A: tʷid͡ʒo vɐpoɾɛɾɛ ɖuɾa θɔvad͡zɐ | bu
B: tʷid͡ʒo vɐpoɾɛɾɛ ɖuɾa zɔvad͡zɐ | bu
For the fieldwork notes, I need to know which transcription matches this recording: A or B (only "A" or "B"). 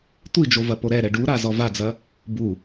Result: B